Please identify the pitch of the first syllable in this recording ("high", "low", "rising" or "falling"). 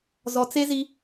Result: low